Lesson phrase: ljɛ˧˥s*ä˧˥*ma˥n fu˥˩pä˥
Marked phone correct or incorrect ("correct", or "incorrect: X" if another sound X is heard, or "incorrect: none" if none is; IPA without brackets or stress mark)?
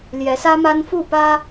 incorrect: ä˥